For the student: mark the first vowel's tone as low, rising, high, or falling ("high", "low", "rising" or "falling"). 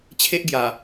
high